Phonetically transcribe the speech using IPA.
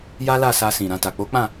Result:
j a˦ l a˦˨ s a˧ s ĩ˨ ɾ ã˧ t a˨ k͡p o˨˦ k͡p ã˦˨

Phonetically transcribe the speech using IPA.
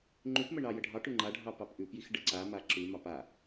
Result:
ŋ͡ǃ ʉ p m ə ɳ ɑ j ə ɖʱ ɑ ʈ ʉ ŋ͡ǃ a ɖʱ ɑ p ɑ p ʔ ʉ p j i x ɖ ə ǀ a m a ǁ ʉ m ɑ p a

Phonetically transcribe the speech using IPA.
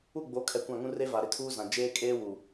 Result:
u˦˨ ɡ͡b o˨˦ kʰ ɛ˨ kʷ ã˦˨ ŋ ũ˦ r e˦ v a˨ ɾ ɪ˦ tʰ uː˦ z ã˨ d͡ʒ eː˦ kʼ eː˦ w u˨

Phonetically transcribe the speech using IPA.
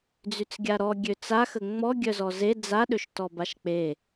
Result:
d͡z y t͡s ɡʲ a ɾ ɔ ɡʲ ø t͡s a x ə ŋ͡m ɔ ɡʲ œ z ɔ z e d͡z a ɗ ø ʃ t ɔ b a ʃ k͡p e

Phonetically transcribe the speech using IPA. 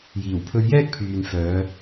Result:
j iː˨˩ w pʰ ɵ˧ ɥ j ɛː˥ k̚ pʰ yː˨ n f œː˨˧

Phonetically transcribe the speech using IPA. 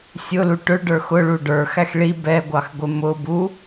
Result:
sʲ ʊ l u ʈ ʊ ɭ ɖ ə˞ x ʊ ɭ u ɖ ə˞ x æ x ɭ i b ɛ ɡʷ ɑ x ɡʷ ɪ m ʊ b u

